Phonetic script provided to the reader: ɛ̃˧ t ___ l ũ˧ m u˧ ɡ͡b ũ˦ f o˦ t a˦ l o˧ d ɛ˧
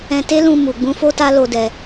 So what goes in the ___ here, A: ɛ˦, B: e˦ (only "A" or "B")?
B